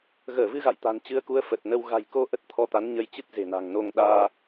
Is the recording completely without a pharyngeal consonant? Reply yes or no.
yes